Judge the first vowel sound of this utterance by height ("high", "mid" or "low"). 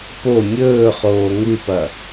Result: mid